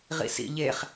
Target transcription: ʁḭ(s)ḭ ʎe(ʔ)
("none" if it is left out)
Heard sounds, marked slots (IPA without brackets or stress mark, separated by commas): s, χ